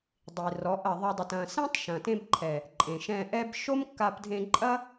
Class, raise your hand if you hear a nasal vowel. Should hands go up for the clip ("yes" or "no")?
yes